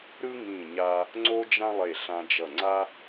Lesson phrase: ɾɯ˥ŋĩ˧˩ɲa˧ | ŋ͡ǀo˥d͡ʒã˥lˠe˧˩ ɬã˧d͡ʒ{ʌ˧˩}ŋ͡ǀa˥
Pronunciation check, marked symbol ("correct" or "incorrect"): correct